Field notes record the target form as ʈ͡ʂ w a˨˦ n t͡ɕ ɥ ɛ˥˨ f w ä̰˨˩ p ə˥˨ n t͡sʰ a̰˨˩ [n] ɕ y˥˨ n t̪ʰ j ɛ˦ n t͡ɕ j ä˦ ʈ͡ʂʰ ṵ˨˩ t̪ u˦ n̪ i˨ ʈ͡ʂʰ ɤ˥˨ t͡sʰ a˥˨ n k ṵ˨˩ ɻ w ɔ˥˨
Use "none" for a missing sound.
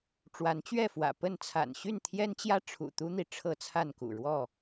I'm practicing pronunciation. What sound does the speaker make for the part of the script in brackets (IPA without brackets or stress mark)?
n